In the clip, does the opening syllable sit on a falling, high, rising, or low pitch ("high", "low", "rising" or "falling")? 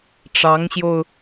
rising